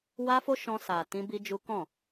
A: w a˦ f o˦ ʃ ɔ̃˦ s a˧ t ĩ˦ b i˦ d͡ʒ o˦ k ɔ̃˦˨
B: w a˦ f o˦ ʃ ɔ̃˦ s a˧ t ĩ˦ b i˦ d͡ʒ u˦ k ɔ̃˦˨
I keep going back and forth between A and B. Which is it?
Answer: B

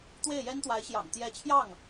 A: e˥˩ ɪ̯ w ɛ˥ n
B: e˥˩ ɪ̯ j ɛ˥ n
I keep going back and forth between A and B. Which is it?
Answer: B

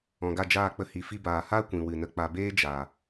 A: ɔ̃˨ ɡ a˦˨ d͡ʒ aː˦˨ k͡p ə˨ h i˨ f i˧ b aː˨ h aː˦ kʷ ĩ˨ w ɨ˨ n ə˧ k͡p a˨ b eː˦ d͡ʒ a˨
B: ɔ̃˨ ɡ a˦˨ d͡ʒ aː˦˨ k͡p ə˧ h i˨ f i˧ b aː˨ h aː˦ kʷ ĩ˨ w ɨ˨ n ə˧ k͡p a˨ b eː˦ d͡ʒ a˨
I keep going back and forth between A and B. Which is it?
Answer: B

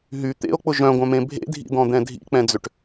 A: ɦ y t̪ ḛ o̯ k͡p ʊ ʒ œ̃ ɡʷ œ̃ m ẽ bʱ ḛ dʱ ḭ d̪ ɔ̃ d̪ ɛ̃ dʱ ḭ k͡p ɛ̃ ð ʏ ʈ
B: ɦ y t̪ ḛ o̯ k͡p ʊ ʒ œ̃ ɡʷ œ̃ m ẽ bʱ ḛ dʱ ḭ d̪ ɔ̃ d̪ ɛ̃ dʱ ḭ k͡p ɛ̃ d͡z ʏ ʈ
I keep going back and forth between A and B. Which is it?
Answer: B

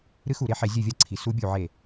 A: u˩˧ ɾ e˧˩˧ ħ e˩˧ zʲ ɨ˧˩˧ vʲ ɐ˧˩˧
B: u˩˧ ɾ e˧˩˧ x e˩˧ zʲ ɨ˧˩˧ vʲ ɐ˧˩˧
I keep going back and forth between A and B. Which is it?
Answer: A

